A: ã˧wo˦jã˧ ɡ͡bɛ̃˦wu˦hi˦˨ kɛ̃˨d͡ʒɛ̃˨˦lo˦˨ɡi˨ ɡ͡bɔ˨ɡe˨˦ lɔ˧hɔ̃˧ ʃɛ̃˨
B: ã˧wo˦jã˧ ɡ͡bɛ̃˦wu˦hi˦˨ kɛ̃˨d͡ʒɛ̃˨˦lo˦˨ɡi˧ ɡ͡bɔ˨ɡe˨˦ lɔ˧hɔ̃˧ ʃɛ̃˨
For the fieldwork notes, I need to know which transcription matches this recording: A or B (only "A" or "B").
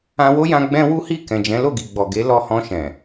A